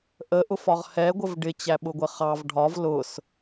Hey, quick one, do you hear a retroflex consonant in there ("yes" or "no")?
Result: yes